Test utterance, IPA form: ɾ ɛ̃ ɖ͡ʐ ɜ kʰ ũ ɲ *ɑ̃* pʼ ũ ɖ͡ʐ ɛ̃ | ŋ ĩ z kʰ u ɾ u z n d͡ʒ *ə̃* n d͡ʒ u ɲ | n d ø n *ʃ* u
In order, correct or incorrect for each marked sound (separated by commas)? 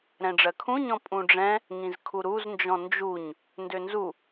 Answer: incorrect, incorrect, incorrect